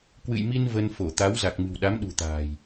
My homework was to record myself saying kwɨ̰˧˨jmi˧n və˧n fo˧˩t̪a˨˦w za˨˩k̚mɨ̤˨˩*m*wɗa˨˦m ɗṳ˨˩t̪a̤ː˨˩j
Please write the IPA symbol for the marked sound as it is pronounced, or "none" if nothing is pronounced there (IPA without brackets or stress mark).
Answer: none